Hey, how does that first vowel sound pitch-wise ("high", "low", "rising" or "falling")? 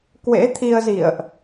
rising